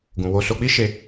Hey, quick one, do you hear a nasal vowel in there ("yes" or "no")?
yes